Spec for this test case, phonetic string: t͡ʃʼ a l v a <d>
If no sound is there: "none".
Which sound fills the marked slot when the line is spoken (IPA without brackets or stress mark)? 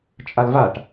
ʈ